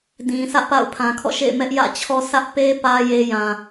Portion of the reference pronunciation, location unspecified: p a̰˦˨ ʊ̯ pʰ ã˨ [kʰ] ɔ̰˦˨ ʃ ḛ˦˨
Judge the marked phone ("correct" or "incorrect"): correct